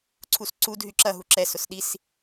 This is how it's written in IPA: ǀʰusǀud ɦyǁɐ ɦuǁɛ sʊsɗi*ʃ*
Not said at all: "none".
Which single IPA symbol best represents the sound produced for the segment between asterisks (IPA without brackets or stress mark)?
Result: s